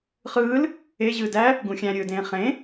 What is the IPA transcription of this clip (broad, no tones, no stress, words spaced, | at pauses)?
χɯːl | eʑɯː dæ | ɡũxʲæ̃ɾʲɯːdẽː χẽ